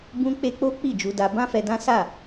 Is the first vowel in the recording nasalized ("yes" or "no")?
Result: yes